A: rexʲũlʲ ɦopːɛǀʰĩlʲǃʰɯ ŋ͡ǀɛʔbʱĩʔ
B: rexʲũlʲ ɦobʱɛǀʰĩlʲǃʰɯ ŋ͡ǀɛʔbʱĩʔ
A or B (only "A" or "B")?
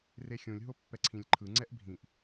A